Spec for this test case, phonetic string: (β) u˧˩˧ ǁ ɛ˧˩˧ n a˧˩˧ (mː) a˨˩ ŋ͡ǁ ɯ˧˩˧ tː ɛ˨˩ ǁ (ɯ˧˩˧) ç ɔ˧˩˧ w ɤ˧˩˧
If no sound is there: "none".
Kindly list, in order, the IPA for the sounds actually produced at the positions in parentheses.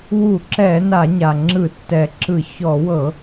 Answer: w, ɲ, ɯ˧˩˧

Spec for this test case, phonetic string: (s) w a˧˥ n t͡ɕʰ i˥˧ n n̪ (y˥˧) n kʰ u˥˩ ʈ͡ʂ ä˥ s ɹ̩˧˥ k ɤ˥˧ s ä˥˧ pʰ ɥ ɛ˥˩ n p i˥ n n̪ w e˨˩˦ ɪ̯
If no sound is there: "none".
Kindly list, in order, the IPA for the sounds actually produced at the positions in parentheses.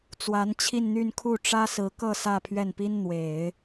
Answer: t͡s, y˥˧

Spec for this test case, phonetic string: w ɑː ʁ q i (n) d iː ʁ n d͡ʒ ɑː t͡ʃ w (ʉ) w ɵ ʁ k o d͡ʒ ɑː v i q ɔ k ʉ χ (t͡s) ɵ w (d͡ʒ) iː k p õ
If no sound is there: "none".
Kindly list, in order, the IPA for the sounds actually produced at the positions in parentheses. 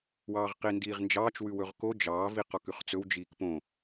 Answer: n, ʉ, t͡s, d͡ʒ

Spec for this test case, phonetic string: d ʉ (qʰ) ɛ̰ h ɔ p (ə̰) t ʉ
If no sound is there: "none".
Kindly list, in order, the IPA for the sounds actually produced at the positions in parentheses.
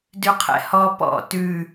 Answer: qʰ, ɔ̰

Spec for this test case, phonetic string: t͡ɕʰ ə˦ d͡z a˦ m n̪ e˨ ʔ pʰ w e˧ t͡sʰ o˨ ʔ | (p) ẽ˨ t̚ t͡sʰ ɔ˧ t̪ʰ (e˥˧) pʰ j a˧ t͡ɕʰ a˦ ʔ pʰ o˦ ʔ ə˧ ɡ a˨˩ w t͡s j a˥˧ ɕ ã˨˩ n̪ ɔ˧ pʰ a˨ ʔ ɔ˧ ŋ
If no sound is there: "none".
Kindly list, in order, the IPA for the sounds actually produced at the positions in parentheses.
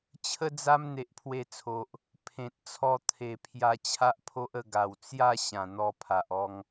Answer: pʰ, e˨˩

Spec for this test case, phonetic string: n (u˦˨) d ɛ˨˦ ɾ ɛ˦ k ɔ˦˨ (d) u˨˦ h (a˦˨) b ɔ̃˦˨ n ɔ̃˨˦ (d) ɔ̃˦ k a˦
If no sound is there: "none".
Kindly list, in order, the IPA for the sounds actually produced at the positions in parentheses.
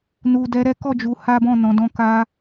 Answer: u˨, d͡ʒ, a˦, d

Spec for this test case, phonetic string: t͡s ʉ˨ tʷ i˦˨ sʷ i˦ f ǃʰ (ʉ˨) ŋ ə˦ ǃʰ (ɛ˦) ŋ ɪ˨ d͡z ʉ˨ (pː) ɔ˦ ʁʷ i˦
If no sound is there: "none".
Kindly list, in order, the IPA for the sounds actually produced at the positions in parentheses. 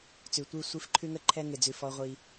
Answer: ʉ˦, ɛ˦, f

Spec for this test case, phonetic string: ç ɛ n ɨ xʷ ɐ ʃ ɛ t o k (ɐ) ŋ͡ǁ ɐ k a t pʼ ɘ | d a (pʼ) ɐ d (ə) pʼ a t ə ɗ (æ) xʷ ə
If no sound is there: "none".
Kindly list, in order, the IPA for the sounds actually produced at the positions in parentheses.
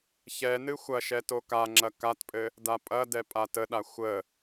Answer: a, pʼ, ɛ, a

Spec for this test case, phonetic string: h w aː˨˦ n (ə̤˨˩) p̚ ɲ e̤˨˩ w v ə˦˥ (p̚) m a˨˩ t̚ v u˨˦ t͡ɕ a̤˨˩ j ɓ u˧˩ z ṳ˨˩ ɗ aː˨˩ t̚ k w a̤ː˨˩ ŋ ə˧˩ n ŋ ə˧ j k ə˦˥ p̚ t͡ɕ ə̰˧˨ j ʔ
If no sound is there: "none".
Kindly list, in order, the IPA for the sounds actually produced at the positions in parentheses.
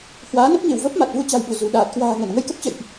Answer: ə˦˥, p̚

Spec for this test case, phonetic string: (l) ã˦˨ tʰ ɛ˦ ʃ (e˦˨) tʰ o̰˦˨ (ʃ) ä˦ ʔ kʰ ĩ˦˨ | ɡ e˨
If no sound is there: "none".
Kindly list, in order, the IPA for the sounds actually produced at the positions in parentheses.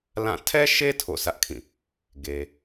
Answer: l, e˦, s

